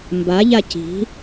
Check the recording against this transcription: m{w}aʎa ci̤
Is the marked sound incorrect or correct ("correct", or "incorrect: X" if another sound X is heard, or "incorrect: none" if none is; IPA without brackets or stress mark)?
incorrect: b